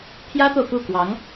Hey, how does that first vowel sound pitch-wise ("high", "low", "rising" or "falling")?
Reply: high